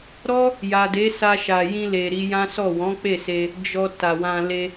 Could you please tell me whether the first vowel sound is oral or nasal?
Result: oral